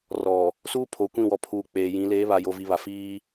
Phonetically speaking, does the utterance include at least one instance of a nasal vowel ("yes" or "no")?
yes